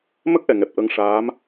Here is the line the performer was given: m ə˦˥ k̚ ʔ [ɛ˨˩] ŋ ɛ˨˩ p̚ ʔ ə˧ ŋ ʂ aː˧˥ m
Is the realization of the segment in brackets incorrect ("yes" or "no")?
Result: no